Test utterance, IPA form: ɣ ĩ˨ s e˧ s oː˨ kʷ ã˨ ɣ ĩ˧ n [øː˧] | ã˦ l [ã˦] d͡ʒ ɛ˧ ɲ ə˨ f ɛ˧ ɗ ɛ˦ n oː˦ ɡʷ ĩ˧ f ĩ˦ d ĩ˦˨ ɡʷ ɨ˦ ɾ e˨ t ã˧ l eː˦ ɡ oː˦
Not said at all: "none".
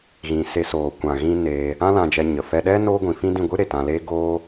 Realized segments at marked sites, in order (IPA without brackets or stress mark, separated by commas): eː˧, ã˧